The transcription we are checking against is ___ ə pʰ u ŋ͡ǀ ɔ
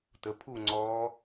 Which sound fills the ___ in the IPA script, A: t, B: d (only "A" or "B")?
A